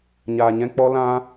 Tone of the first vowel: low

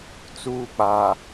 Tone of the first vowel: high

